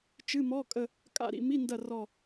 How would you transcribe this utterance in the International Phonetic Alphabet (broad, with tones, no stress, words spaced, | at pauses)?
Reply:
t͡ʃɨ˧˥˧mɔ˧˥˧kʼə˦˨ | kʼa̰˦˨ɾḭ˦˨mi˧˥˧ndɐ˦˨ rɔ˦˨